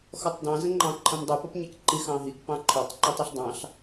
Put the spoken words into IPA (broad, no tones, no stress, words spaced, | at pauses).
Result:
xɔtˤdɑ̃zə̃ŋ͡ǃɑ̃ ǃʰə̃mdˤupʌpɲɛk ǃixɑ̃ɦik pɑ̃ǃʰɔtˤǃɪ tˤiɬdˤɑ̃ɬ